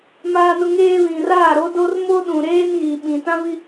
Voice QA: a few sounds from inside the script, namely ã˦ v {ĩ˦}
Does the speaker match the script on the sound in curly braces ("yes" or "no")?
no